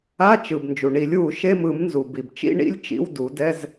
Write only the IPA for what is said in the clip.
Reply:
a˧˥˧t͡ʃɯ˩b nd͡ʒu˩ɳi˨˩˦lʲwu˨˩˦ ʃe˧˥˧mɯ˨˩˦mnzu˩ bi˩bt͡ʃḭ˧˥˧ɳḭ˧˥˧lʲ t͡ʃḭ˧˥˧wdu˨˩˦ dɛ˧˥˧z

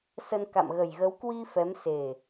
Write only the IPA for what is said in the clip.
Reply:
sə˧n ka̰˧˨mɣə˨˩jɣə˨˦w kwi˧ fɛ˨˦mse˨˩

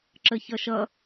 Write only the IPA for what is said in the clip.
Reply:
ǁəçʌʃʌ

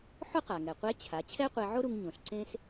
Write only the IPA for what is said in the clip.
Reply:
ħʊ˥qa˩ŋɛ˩qʷe˧˥ t͡ɕʰa˩˧ t͡ɕʰɛ˥qʷe˧ʕo˥ɾu˧ŋ ɲõ˩ɬǀẽ˥s

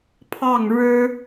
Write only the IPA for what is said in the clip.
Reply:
pʰɑ˥˩ŋ ɻɻ̩˥

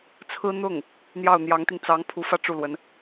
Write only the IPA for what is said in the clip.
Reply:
t͡sʰɹ̩˥ n̪ʊ˥˩ŋ | n̪jɑ˥˩ʊ̯n̪jɑ˧˥ŋt̪i˧ŋ t͡sɑ˧˥ŋpʰu˧˥fä˥ ʈ͡ʂu˥˩lwə˧˥n

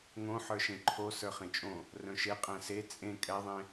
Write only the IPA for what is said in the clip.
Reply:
ŋõ ħə˞ʃẽǃʰo sə˞χẽt͡ʃʼõ | rœ̃ʃe qʼæ̃se t͡sʼẽ kʼɛðˤẽ

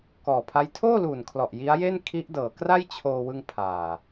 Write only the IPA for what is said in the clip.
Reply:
kɔː˨˩pʰa˦˥j tʰoː˥˩luː˨˩nkʰlɔ˨˩ʔ ji˦˥a̯je˥˩n kʰi˦˥ʔdɤː˩˦ kra˥˩j t͡ɕʰoː˧wɯ˧ŋ pʰaː˨˩

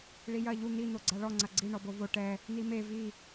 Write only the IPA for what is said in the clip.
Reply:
ɭijɐ ʎu n̪i n̪oɡ͡ǀaɭɔ ŋ͡ǀɐɡ͡ǀi ɳɔbovo ʈɛ | n̪ime vi

